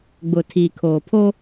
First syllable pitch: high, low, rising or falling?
low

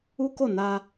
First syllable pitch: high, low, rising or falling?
high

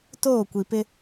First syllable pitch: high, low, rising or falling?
falling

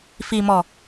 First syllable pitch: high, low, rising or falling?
low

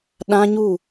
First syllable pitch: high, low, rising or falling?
high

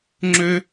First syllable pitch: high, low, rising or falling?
high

